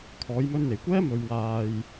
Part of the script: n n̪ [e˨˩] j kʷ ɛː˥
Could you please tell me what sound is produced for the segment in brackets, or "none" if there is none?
e˨˩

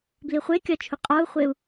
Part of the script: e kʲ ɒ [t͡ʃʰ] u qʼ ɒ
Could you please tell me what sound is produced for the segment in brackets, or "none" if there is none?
t͡ʃʰ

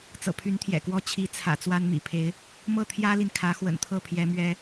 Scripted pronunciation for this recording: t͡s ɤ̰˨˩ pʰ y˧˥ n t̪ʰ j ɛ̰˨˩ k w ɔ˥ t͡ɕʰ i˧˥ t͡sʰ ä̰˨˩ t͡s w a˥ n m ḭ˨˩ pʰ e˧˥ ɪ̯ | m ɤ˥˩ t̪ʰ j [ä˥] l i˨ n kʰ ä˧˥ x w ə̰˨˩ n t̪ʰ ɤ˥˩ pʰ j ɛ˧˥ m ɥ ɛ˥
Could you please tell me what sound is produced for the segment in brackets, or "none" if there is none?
ä˥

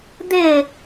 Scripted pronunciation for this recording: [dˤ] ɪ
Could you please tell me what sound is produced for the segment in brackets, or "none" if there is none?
d̪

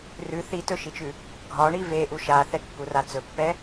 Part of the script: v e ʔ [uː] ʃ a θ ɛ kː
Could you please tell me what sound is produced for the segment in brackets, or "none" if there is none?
u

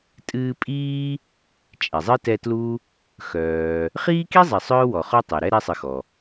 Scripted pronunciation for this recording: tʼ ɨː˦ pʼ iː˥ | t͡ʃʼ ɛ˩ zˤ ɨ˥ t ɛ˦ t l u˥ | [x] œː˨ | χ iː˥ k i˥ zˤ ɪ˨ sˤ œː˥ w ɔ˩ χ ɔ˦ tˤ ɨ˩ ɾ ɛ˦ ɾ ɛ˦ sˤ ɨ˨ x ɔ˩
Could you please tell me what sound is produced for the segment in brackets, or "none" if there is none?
x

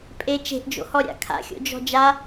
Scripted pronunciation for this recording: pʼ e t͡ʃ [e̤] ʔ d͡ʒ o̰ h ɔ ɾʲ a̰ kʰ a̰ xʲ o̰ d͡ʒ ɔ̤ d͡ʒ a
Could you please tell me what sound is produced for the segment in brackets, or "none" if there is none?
e̤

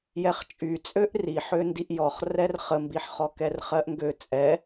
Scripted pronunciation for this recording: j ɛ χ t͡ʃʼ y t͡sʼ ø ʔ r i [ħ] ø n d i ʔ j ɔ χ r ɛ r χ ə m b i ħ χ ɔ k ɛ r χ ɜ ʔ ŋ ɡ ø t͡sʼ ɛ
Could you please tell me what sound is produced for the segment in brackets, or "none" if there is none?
ħ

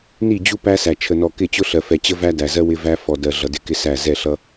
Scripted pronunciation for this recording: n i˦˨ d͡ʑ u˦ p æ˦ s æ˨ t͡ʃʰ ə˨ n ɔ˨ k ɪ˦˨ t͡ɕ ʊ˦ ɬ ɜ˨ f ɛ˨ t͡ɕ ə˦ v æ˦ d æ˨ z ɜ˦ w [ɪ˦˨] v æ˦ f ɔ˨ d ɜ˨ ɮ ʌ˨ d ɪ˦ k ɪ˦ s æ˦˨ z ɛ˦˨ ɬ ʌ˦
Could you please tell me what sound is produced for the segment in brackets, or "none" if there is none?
ɪ˦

